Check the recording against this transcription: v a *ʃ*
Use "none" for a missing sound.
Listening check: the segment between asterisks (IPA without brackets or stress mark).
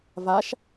ʃ